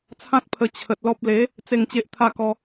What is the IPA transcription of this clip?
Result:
t͡sʰ ã˦ t̚ pʰ ə˧ t͡ɕʰ ə˨ t̚ l ɔ˦ p̚ l e˨˦ | t͡s e˥˧ ŋ t͡ɕ e˦ ʔ t̪ʰ a˥˧ k ɔ˧

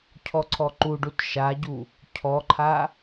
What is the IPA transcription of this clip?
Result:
cʰ ɔ ǀʰ ɔ ǃ u ɖ u t ʃ a ɟ u | cʰ ɔ ǃʰ a

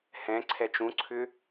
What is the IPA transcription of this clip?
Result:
h ɛ̃ ǀʰ ɛ t͡ʃ ũ ǀʰ ʏ

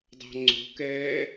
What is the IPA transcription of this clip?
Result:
dˤ ɑ̤ ŋ͡ǀ o̤ k ɛː

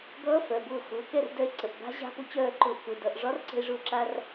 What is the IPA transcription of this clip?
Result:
ɡ ʌː˧˥ f œ˩˧˩ b ʊː˥˩ x ʊː˩˧˩ k ɛ˥˩ r d œ˧ e̯ ǀ ə˩˧˩ ʔ b a̤˧˥ ʑ a̤˧˥ p ʊ˧ t͡ɕ œː˥˩ ǃ ʊː˧ ʔ k ʊ˩˧˩ d ʌ˩˧˩ ʔ ʐ ɒ˧˥ r ǀ ə̤˧ e̯ ʐ ʊː˧ ǁ a˧ r

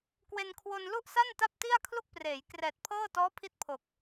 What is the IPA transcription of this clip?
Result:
k w e˧ n kʰ w o˧ n l u˥˩ ʔ s a˥˩ n t a˥˩ p̚ t i˥˩ a̯ kʰ l u˥˩ k̚ p r eː˩˦ j k r ɛː˨˩ t̚ pʰ ɤː˥˩ t ɔː˦˥ pʰ i˦˥ t̚ pʰ o˨˩ k̚

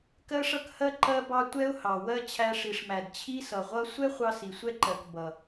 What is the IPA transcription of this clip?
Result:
k ɜ˦ ʂ ʌ˦ k h ɜ˦ ǃ ɜ˦ b ɑ˦ tʷ ɛ˦ ʊ̯ h ɑ˨ w ɜ˦ t͡ɕʰ æ˧ ʂ i˨ ʂ m æ˨ d t͡ɕʰ i˦ s ʌ˨ ʁʷ ʌ˦ sʷ ɛ˦ χʷ ɑ˧ s i˨ sʷ ɛ˦ ǃ ɜ˨ k b ʌ˨

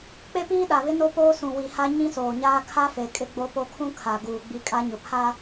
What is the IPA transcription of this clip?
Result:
k͡p e˦ p iː˦ ɗ a˨ β ɪ˦ n o˦ p oː˦ s ũ˨ w i˨ h a˦ ɲ ĩ˦ s oː˨ ɲ aː˦ kʰ a˦ f e˨ kʼ ɪ˦ ɡ͡b o˦ p o˦ kʰ ũ˦ kʰ a˨ ɡ uː˨ ɡ͡b i˦ kʼ a˦ ɲ ʊ˨ pʰ a˦

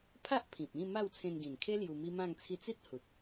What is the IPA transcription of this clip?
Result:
pʰ a˦ ʔ pʰ ĩ˨ p̚ ĩ˥˧ m a˥˧ w t͡sʰ ẽ˧ n ɡ ĩ˨˩ n kʰ e˦ l j u˧ m i˦ m ã˥˧ ŋ t͡sʰ i˦ t͡s i˦ t̚ h u˨ t̚

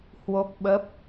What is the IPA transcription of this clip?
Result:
h w o˦˥ k̚ ɓ ə˦˥ p̚

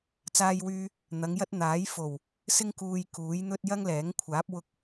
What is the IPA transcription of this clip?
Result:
t͡s aː˥ j w yː˥ | n̪ ɐ˨˧ ŋ j ɐ˥ t̚ n̪ aː˨˥ j f o˨˩ w | s ɪ˥ ŋ k uː˧ j k uː˨˥ j n̪ ɵ˥ t̚ j ɐ˥ ŋ l ɛː˨˥ ŋ kʷʰ aː˨˥ p̚ w ʊ˧ k̚

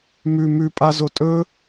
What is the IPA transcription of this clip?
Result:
m ʉ m ʉ pʼ a z o tʼ ɵ

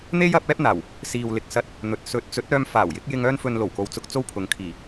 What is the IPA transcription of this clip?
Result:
n̪ e˥ j ɐ˨˥ p̚ ɛː˥ p̚ n̪ aː˨˩ w | s iː˨ w l ɪ˨ k̚ s ɐ˧ t̚ | n̪ ɵ˨ t̚ s ɵ˨˥ t̚ t͡s ɵ˨˥ t̚ œː˧ m f aː˨˩ w j ɪ˨˥ k̚ j ɪ˧ ŋ œː˥ n f ɵ˧ n l o˨˩ w k o˨˧ w t͡s ʊ˨ k̚ t͡s o˥ w pʰ ʊ˨ ŋ kʰ iː˨˩

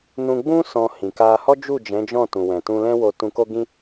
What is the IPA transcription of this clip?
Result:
n ũ˧ ɡ͡b ũ˦ s ɔ̃˧ h ĩ˨ k a˧ h ɔ˦ d͡ʒ u˦˨ d͡ʒ ɛ̃˨˦ d͡ʒ ɔ̃˦˨ t ũ˨ w ɛ̃˨ t ũ˧ l ɛ̃˦ w o˧ t ũ˧ k o˦ ɡ ĩ˦

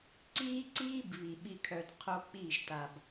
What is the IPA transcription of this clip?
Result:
ǀ iː˦ ǀ iː˦ b β i˨ ɓ i˧ kʰ œ˧ d qʰ o˦ k͡p i˦˨ ʒ t a˨ b

